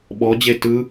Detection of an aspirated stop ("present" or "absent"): absent